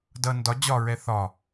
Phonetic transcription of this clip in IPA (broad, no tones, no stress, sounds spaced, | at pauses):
d ʌ n d ɒ d͡ʑ ɒ ɹ ɛ θ ɒ